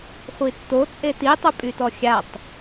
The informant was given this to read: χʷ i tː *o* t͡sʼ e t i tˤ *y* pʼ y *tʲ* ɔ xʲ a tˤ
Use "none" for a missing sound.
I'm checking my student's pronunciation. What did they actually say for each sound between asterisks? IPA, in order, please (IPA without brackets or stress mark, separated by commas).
o, ʏ, t